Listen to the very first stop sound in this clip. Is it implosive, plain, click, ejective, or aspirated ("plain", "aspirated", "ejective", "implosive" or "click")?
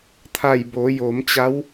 aspirated